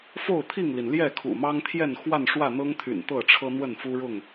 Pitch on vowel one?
falling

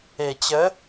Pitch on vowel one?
low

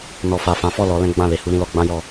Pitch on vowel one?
low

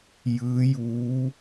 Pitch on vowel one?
rising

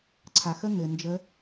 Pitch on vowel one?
low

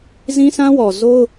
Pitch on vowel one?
high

